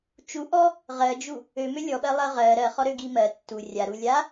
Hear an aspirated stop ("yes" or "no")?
no